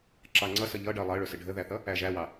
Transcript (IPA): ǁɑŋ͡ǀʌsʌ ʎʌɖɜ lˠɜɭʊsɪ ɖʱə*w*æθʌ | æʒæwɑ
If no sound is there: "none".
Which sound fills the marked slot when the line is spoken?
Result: ð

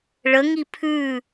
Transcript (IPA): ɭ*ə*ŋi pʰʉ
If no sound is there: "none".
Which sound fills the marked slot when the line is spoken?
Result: ə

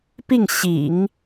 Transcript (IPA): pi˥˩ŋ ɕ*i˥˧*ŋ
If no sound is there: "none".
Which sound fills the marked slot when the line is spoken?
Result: ḭ˨˩˦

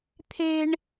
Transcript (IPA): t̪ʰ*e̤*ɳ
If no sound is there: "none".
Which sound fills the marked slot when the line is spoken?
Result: e̤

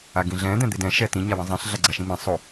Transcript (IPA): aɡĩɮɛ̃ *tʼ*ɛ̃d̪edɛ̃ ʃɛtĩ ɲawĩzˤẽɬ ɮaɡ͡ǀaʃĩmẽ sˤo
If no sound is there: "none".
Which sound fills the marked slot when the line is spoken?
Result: d̪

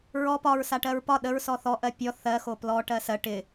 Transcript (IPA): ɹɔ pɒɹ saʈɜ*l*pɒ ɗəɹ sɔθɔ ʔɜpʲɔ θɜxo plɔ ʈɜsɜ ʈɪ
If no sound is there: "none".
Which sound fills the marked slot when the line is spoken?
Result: ɹ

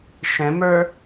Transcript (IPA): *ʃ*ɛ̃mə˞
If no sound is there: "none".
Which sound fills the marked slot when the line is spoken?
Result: ʃ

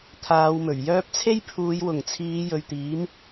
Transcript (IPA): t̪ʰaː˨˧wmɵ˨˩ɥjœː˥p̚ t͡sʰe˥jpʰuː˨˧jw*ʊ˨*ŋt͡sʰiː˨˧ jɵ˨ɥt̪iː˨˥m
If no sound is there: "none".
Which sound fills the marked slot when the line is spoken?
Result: ʊ˨˩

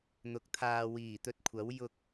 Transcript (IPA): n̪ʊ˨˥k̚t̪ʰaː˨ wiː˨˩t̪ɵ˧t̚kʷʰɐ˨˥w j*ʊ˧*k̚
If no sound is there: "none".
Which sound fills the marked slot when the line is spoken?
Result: ʊ˧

